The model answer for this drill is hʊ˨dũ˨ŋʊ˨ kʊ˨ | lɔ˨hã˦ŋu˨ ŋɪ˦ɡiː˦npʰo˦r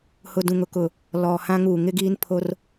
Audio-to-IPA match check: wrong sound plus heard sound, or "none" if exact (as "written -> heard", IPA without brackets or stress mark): none